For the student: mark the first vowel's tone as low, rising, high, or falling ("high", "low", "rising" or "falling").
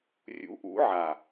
rising